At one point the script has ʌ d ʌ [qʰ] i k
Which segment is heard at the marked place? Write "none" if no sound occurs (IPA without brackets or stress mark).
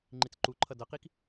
q